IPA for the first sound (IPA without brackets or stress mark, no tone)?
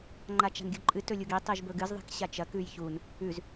ŋ͡ǃ